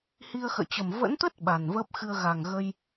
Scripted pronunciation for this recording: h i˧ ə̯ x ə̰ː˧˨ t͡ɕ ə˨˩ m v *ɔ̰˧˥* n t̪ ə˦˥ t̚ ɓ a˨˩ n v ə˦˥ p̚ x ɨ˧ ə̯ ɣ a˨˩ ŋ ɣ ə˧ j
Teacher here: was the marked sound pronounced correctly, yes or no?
no